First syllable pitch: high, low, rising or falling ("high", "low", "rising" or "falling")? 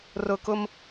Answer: high